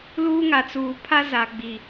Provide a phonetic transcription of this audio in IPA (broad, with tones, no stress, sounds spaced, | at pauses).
l uː˦ ŋ a˨ t͡s uː˨ pʰ a˦ z a˨ ɡ͡b i˨